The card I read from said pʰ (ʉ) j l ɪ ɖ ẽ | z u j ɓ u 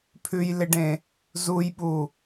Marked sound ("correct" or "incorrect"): correct